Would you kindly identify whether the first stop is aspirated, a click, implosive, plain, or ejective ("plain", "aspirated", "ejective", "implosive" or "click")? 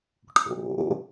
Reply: aspirated